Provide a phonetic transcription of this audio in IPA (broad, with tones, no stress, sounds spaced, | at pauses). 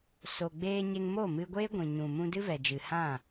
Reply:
s o˨ ɡ͡b eː˧ ɲ e˧ ŋ m o˦˨ m ɨ˧ ɡʷ eː˦ ɡʷ ĩ˨ ɲ ũ˨ m ũ˧ d ɨ˦ v ɛ˨ d͡ʒ ɨ˨ h ã˦˨